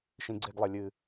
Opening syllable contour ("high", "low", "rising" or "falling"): low